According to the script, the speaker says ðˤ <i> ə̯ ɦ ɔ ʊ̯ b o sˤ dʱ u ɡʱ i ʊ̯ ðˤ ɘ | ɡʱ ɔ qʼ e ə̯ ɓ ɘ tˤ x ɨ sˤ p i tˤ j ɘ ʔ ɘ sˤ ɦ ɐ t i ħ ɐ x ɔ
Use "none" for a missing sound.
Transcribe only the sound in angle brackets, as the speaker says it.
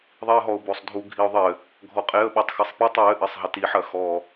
i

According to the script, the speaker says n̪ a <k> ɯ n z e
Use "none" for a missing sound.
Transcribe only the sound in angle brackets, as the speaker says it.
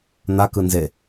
k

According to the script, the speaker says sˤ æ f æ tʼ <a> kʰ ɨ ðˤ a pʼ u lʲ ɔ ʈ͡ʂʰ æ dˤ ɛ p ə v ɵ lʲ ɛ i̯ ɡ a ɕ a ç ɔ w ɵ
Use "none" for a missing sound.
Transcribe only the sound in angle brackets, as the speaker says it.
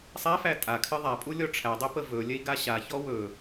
a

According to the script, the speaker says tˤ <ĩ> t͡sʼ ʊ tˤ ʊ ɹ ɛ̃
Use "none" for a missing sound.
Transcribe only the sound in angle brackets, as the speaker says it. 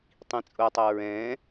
ĩ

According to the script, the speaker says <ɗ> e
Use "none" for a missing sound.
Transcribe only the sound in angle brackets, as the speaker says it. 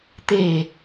t̪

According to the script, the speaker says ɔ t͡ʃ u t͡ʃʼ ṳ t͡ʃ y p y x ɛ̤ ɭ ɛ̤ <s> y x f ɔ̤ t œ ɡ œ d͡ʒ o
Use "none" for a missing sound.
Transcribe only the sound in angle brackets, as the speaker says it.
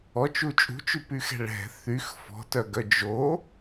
θ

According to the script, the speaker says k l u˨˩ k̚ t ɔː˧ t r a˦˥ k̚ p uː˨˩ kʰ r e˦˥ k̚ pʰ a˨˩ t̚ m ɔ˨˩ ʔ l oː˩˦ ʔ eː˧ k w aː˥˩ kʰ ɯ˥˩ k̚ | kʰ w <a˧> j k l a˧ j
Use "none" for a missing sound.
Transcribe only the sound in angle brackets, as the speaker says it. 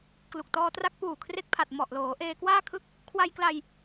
a˧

